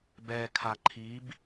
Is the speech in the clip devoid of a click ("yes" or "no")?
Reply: no